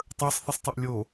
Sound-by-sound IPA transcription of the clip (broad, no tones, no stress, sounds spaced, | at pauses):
tˤ ə˞ sˤ θ i sˤ tˤ u ʔ lʲ o